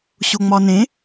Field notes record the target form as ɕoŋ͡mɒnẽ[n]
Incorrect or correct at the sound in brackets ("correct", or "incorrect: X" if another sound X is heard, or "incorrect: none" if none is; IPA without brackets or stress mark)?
incorrect: none